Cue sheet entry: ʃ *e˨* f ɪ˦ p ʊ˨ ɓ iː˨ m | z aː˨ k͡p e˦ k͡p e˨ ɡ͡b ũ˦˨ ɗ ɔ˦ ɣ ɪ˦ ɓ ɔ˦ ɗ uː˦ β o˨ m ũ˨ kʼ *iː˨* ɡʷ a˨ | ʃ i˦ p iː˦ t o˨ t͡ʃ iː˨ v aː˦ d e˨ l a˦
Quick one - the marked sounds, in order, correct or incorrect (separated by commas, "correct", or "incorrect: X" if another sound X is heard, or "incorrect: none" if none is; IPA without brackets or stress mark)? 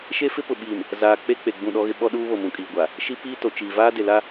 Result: incorrect: e˦, correct